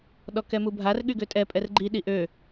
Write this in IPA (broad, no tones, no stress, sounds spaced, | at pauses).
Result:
ɗ ɔ k ɛ m u bʱ a r ɠ y ɡ ø tʼ ɛ pʼ ɛ r ɡ͡ǃ i ɗ i ʔ ø